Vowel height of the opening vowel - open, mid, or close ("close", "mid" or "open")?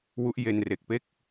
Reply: close